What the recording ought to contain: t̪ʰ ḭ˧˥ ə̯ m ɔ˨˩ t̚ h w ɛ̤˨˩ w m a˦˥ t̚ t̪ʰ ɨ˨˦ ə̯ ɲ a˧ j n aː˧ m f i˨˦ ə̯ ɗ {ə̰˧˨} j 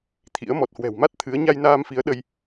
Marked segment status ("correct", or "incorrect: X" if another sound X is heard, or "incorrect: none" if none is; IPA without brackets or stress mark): incorrect: ə˧